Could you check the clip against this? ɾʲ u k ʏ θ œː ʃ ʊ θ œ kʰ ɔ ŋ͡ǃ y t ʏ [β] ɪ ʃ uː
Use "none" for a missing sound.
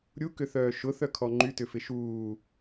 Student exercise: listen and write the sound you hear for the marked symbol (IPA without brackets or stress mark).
f